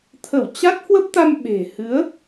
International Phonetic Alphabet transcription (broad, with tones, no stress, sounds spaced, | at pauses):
t̪ʰ ə˧˩ w t͡ɕ a˦˥ t̚ h w ə˦˥ p̚ t̪ a˧ m ɓ e̤˨˩ h ɨ˨˦ ə̯